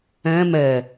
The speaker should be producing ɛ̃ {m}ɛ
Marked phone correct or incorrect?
correct